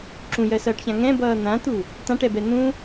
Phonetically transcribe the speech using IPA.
ǁ ũ j ɜ s ʌː ʈ ç ã ŋ ɛ̃ b ʌː n̪ ã t̪ u | t ã ʈ ɛ b ɛ n̪ ũ

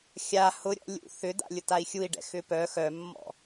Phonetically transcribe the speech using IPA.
xʲ a h ʊ ɾʲ ɔ̰ lʲ ṵ θ ʏ d a̰ lʲ ʊ t a i̯ xʲ u i̯ ɖ ɛ̰ x ʏ p œ x œ mː ɔ̰

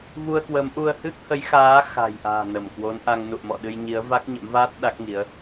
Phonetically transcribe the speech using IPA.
v u˧ ə̯ k w ə˨˦ m ʔ u˧ ə̯ h ɨ˦˥ k̚ h ə˨˦ j x aː˨˦ x a̤˨˩ j ʔ a̤ː˨˩ n ə˧˩ m k w o˨˦ n ʔ a˧ ŋ n ṵ˧˨ ə̯ m ɔ̰˧˨ ɗ ɨ˧ j ɲ i˨˦ ə̯ v a˦˥ k̚ ɲ ə̰˧˥ m v aː˦˥ t̚ ɗ a˦˥ k̚ ŋ i˨˦ ə̯

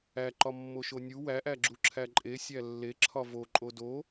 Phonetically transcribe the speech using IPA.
æ ǃ ɒ mː o ʃ o nʲ u w æ ʔ æ ɡ͡ǁ u ǁʰ æ ǃʼ e sʲ æ lː e ǁʰ ɒ v o ǃʼ o d o

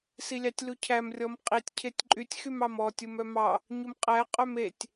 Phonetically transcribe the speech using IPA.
s i lʲ ɑ tʲ l u cʰ æ m rʲ ɔ m qʼ i tʲ cʰ e tʲ ǃʼ y tʲ x y m ɑ m ɔ tʲ u m œ m ɑ | ɲ u m qʼ æ qʼ œ m e tʲ

